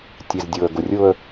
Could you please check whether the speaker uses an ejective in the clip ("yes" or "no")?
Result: no